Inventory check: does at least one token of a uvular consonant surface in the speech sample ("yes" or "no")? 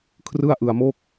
no